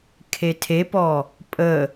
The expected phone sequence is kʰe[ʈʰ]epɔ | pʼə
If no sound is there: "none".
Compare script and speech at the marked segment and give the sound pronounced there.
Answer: tʰ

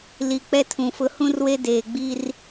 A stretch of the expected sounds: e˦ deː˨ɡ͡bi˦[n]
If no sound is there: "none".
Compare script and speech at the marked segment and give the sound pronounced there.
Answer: r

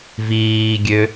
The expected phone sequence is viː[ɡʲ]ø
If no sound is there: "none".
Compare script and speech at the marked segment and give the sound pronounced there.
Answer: ɡʲ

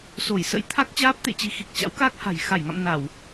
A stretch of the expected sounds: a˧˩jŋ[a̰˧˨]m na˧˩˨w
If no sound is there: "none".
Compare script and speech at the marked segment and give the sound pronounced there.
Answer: a̰˧˨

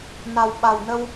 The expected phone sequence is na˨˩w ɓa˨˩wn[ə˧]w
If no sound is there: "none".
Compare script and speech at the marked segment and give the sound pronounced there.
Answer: ə˧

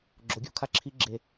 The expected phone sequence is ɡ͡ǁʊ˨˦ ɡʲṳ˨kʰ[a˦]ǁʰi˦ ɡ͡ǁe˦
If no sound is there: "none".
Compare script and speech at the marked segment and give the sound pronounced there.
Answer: a˦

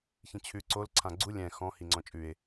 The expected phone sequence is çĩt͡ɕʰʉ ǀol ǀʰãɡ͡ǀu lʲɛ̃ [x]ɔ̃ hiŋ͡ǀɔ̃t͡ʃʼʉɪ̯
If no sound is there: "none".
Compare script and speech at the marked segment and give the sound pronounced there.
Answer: x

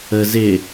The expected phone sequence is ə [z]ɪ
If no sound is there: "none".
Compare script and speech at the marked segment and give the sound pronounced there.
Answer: z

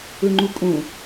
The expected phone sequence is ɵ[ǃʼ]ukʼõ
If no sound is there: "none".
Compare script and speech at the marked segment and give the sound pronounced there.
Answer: ŋ͡ǃ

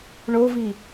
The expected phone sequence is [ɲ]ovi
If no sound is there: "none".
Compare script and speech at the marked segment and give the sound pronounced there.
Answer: ɳ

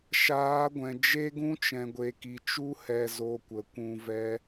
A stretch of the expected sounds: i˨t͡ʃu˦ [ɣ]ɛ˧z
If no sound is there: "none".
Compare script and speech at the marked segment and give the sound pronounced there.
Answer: h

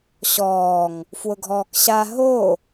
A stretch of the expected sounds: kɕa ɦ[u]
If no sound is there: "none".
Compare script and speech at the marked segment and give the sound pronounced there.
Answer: o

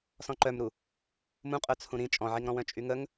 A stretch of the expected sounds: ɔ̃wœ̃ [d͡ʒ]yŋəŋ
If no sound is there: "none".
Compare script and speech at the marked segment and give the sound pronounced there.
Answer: t͡ʃʼ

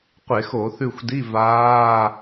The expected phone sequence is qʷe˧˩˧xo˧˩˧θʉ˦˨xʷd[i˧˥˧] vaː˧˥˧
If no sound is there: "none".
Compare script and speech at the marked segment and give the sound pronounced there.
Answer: i˧˥˧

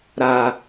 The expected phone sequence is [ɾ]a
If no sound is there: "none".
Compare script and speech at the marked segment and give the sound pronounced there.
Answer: ɾ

